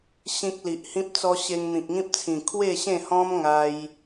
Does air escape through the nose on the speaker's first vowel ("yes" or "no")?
yes